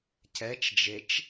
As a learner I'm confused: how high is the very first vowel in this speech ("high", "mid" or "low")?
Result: mid